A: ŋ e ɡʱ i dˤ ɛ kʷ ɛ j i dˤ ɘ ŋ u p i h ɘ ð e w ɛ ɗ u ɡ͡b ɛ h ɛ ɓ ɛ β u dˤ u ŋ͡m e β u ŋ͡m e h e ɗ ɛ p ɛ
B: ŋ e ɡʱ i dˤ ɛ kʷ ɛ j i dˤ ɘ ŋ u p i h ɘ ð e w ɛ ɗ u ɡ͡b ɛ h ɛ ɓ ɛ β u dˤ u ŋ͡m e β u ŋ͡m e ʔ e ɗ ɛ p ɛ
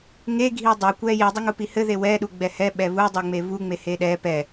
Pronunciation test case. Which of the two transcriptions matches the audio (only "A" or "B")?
A